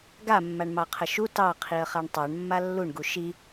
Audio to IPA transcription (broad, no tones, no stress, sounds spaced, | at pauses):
ɡ a mː a ɳ m ɑ qʰ ə ʃ u t ɑ qʰ i ə̯ χ a ɳ tˤ ɑ ɳ mː a lː u ɳ ɡ u ʃ i